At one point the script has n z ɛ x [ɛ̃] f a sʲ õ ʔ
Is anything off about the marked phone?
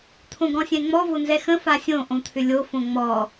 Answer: yes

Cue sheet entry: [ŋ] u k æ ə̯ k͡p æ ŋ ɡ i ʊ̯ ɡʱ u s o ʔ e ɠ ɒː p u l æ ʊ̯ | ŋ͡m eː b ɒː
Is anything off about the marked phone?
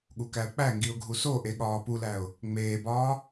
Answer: yes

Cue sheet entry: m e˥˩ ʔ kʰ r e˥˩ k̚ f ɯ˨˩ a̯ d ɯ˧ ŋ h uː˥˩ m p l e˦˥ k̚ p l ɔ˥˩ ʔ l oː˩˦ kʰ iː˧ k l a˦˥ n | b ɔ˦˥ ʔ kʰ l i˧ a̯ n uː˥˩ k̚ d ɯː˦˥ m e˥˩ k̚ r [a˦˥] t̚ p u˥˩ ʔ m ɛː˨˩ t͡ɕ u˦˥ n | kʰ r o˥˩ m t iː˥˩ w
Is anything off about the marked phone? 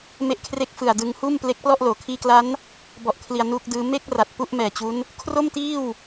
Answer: yes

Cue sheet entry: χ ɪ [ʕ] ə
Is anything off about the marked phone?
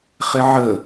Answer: no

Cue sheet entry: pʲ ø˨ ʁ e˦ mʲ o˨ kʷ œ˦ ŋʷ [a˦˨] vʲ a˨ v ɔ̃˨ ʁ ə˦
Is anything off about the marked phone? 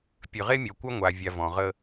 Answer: yes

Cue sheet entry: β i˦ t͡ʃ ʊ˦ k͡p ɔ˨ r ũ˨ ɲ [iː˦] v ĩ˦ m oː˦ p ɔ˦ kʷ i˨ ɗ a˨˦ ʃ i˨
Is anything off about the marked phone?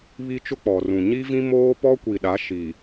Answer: yes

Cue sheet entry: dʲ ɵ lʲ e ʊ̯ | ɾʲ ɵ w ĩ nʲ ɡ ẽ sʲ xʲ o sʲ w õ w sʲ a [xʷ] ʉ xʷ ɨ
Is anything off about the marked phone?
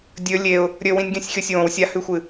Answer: yes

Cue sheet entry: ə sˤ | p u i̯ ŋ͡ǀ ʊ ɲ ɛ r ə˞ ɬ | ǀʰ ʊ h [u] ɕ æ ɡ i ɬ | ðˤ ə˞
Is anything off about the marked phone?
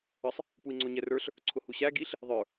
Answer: no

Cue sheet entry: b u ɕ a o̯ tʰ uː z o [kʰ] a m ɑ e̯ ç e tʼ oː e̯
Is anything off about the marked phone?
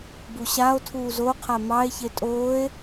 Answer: yes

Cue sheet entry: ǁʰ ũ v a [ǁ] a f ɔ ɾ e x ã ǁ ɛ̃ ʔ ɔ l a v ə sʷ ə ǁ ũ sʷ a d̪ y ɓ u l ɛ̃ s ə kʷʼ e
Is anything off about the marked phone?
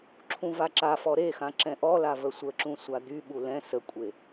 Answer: no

